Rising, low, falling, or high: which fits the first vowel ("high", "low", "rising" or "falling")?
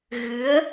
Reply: rising